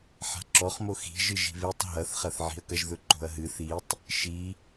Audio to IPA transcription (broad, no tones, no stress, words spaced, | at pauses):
ħa̤ǁɔχmo xi̤ʒɨ ʒi̤βetˤ ɦɐθχɐθʕi̤ɐ̯kɐʒ ðɵǃo̤ɐ̯ɦɨ θitˤ | ʃi